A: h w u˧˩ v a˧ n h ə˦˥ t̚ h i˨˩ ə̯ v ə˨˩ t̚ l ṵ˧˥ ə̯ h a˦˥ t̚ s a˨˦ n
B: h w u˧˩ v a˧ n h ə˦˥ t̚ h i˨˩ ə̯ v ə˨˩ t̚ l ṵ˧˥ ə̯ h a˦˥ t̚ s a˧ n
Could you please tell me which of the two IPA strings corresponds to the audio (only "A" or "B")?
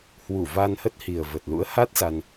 B